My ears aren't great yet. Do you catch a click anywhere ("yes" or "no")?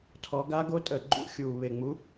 yes